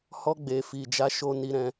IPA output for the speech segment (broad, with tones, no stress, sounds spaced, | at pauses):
h ɔ˧ ɡ͡b e˨ f i˨ d͡ʒ a˨˦ ʃ o˧ n i˧ ɾ ɛ̃˧